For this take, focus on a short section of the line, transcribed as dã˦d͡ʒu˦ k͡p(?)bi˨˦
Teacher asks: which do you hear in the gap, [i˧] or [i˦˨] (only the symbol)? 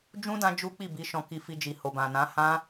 i˦˨